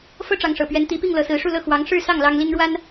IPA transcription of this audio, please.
f ɤ˥ ʈ͡ʂ ɑ˧˥ ŋ ʂ ɤ̰˨˩ p ɥ ɛ˧˥ n t̪ i˧˥ p i˥˩ ŋ l ɤ˧˥ s ɹ̩˧˥ ʂ u˥˧ l ɤ˥˩ x w ɑ˧˥ ŋ ʂ ɻ̩˥˧ s ɑ˥˩ ŋ l ɑ˥ ŋ l i˥ ŋ ɻ w a˥ n

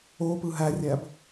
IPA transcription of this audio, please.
o p ɯ ɦ æ rʲ æ b

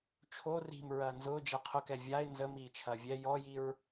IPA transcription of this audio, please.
t͡ʃʰ o r i̤ m ɹ ɐː n z ʊː d͡ʒ ɛ qʰ ʊ k ɛ vʲ a ɪ̯ n z ə m iː t͡ʃʰ ɐː vʲ ɛ j ɔ j i ɹ

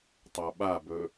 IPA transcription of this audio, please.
tˤ a ɓ a b ɵ

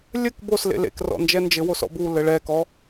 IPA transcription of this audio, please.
lʲ ɘ k b o s l ḛ l ḛ k r ɔ̰ n d͡ʒ ɛ n d͡ʒ ɘ w o s ɔ̰ b u l ɘ ɭ ɛ k ɔ

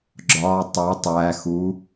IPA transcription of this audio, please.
ɡ͡ǁ ɒ tˤ o tˤ æ x u

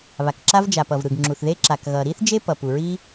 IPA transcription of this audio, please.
β a˩ k ǁ a˥ v d͡ʒ a˩ p ʌ˩ v ɾ ɯ˩ ɡ ŋ͡ǁ u˩ θ ð e˥ ǁ a˩ k ɣ ʌ˩ ɾ i˥ θ d͡ʒ e˥ p ʌ˩ p u˩ ɹ i˥

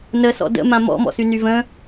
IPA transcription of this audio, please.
n ə s ɔ̰ d ə̰ m ã m ɔ̰ m ɔ̰ s y n y v ə̃

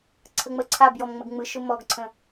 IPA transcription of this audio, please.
ǀʰ ə ŋ͡m ə ǀʰ a b j ɔ m ŋ͡m ə ɡ ŋ͡m ɯ ʃ ʊ m ɔ ɡ ǀʰ ə̃

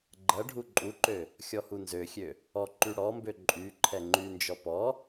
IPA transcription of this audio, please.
ɡ͡ǃ ɐ ɖʱ u ǃʼ u ǃ ø | xʲ ɔ h u n z ø xʲ ø | ɔ ǃ y ɽ ɔ m b ø ǃʼ y ǃʰ ɛ ŋ͡ǃ y n d͡ʒ ɔ p ɔ

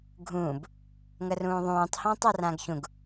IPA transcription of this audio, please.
ɡʱ ũː b | ŋ ə r ũː ðˤ ũː tˤ h ãː tˤ a r ãː ɡ ç ũ ɡ

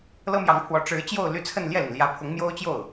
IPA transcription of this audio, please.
l ɤ˥ m j ɑ˧˥ ŋ pʰ w ɔ˧˥ ʈ͡ʂ ɻ̩˧˥ t͡ɕ j o˥˧ ʊ̯ l y˥˧ t͡sʰ ə˥˧ n l j ɛ˥˩ l i˩ n l j ä˧˥ pʰ ʊ˧˥ ŋ m j o˥ ʊ̯ t͡ɕ j o˥˩ ʊ̯

